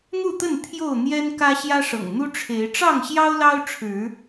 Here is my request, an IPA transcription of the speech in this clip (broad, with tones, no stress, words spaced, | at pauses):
n̪u˥˨t̪ə˥˨n t̪ʰjo˥˨ʊ̯n̪jɛ˦nkä˦ ɕjä˦ʂɤ̰˨˩ŋn̪u˦ ʈ͡ʂʰe˨˦ɪ̯ ʈ͡ʂɑ˥˨ŋɕjɑ˦ʊ̯lɑ˦ʊ̯ʈ͡ʂʰɻ̩˨˦